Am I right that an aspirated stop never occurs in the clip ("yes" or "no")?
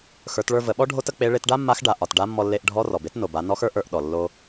yes